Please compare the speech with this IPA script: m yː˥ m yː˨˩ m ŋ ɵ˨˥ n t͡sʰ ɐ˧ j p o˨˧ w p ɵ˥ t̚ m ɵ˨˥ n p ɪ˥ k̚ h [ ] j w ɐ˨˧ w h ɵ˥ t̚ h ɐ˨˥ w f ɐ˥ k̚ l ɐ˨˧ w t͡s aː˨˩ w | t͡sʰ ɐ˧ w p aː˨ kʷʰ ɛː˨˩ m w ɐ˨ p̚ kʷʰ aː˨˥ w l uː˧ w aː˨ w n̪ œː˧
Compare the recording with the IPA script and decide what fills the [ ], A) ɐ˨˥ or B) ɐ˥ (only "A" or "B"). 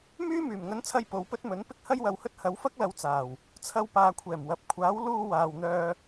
B